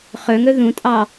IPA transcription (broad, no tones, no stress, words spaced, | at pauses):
χɵŋɵ ðũtʼɑ